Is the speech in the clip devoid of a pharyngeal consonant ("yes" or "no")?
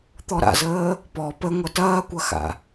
yes